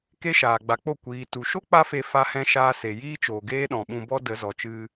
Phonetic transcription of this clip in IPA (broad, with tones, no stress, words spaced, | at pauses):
ke˦ʃaː˨ɡ͡ba˨˦k͡po˦˨ kʷiː˨tu˨ʃo˦ k͡pa˦fe˧ fa˧hɛ̃˧ ʃaː˧se˨ jiː˦t͡ʃoː˨ ɡeː˦ɗɔ̃˨ɓũ˧bɔ˦ də˨˦zɔ˨t͡ʃɨ˧